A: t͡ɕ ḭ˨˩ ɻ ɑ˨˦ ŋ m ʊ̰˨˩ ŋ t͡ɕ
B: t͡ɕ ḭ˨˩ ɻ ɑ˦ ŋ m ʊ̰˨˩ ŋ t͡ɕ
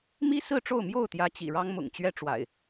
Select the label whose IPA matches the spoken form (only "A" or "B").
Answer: B